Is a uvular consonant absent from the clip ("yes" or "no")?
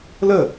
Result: yes